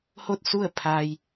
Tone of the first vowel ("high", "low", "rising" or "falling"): falling